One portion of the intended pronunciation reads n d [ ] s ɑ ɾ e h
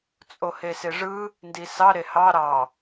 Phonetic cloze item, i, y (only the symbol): i